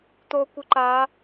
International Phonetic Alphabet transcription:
t̪ o kʷ ɨ ǃ a

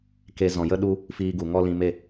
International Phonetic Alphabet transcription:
k e˧ z ɔ̃˨ j ə˦ ɗ u˦ | f iː˧ ɡ u˨ ŋ ɔ˦ l ĩ˧ m e˦˨

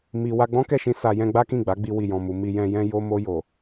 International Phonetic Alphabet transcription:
m i˧ w a˧ ɡ͡b ɔ̃˦ k ɛ˦˨ ʃ ĩ˧ s a˧ j ɛ̃˦ ɡ͡b a˦ k ĩ˦˨ ɡ͡b a˨˦ ɡ͡b i˧ w i˨ j ɔ̃˨ m u˨ m i˧ j ɛ̃˧ j ɛ̃˦ j o˧ m o˧ j o˨

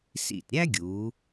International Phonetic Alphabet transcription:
s ḭ˧˩ t ɾʲ æ˥ ɡʲ uː˩˧

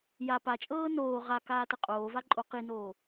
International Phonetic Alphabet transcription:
j a p a t͡ʃʼ ɤː n oː ʁ a k aː t ə qʼ oː v a ǃʼ o q i n oː

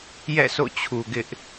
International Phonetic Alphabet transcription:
j ɛ̰˦˨ s o̰˦˨ t͡ɕʰ u˨ ɡ ɪ˦ ʔ

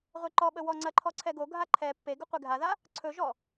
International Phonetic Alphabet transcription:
ʁʷ e ǃ ɔ ɓ ə w ɔ ŋ͡ǀ ɐ ǃʰ ɔ ǀʰ ɛ ɡ o ɡʱ a ǃʰ ɛ pː e ɡ ɵ qʷ e ɡʱ a ð a | ǀʰ ɵ ʒ ɔ

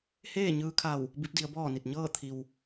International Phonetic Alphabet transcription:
h eː˥˨ ɲ ɯː˧ kʰ a˧˩ w | b i˧˥ p̚ d i˩˧ ə̯ b ɔː˥˨ n i˧˩ t̚ ɲ ɤː˥˨ t̪ʰ i˩ w

